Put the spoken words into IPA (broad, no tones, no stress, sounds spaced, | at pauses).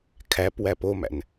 kʰ æ p w æ p o m æ̰ n